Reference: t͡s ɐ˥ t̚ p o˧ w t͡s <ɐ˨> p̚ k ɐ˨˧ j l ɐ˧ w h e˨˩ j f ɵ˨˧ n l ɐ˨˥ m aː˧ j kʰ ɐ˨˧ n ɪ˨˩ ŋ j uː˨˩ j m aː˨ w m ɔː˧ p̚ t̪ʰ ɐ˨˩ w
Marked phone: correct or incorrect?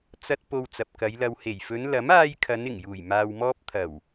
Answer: correct